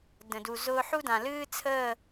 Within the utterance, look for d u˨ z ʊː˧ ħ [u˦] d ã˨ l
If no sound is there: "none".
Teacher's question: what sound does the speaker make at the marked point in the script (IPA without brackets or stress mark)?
u˦